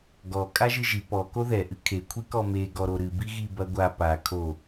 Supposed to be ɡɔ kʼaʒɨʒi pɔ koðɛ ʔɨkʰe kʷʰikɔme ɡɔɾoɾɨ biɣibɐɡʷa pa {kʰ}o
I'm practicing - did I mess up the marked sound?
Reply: no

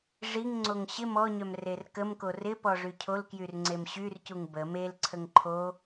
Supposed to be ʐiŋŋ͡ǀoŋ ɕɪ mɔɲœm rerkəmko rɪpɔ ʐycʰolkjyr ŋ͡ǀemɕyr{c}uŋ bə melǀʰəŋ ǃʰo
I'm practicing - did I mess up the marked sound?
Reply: no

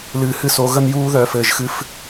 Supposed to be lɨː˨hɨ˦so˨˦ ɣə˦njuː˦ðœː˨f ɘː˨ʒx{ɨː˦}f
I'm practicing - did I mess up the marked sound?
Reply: yes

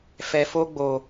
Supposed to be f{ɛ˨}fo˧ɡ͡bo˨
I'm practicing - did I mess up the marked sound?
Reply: no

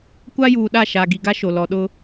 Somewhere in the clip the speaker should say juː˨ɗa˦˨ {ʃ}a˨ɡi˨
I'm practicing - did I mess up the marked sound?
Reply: no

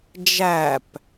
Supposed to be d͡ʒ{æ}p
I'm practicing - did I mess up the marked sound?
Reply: no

